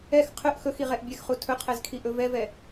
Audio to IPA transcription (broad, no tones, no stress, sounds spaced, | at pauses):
ɛ x qʰ ɵ ʔ x ɵ x i ʁ ɛ ʔ bʲ ɛ x χ u tʰ ɵ qʰ ɛ z kʰ i ʔ ɵ v ɛ v ɛ